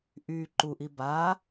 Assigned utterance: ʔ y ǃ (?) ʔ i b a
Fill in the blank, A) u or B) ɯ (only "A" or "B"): A